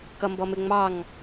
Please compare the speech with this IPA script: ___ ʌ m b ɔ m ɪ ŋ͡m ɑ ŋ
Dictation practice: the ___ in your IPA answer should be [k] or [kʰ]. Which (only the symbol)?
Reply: k